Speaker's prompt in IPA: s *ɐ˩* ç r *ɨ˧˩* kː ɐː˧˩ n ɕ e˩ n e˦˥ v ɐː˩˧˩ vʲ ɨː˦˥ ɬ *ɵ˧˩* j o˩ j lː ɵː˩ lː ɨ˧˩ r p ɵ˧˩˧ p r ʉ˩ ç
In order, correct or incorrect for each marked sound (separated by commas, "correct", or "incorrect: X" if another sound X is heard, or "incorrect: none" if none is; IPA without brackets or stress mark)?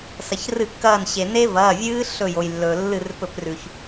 correct, incorrect: ɨ˧˩˧, correct